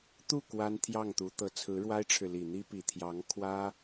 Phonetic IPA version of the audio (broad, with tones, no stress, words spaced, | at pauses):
t̪u˥˩ kwa˥n t̪ʰjɑ˥˩ŋt̪u˧˥t̪ɤ˧˥ t͡sʰɹ̩˧˥ɻwa˥ɪ̯ʈ͡ʂʰɻ̩˨li˨˩ n̪i˥pi˨˩ t̪ʰjɑ˧˥ŋkʰwä˥